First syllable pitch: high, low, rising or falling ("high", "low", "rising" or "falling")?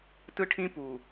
high